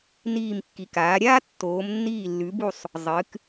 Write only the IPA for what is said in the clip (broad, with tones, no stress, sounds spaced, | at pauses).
n iː˧˩ m kː i˩˧ k aː˩˧ ɾʲ aː˥ tː oː˩˧ m nː iː˧˩ lː ʉ˩˧ b u˧˩ sˤ | zˤ ɨ˩˧ k